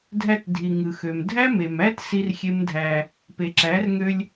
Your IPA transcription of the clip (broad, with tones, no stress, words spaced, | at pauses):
dʱæ˧tdʱi˨ ŋɯ˨xø˨mdʱæ˦me˨m æ˦t si˦rxʲe˦mdʱæ˧ | pe˨ǁæ˨˦rŋø˧lʲ